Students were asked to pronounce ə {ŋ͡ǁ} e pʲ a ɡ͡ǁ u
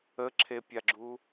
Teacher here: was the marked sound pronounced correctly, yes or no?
no